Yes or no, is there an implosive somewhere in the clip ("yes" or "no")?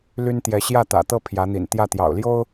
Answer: no